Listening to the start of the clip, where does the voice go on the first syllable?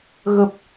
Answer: low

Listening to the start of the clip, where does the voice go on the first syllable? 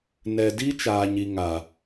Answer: low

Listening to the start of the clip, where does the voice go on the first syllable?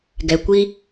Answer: low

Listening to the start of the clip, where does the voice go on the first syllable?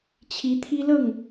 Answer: rising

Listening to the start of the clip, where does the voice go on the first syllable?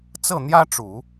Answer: falling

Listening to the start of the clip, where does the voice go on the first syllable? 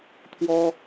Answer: high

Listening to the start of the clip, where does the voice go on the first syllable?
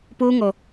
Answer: high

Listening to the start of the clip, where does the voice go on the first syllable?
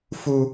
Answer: high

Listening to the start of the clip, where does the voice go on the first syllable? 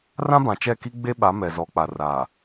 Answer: high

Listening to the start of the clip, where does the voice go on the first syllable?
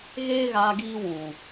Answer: high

